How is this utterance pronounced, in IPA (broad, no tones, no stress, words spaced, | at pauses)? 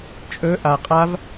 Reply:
t͡ʃʼɵ ʔa qʼav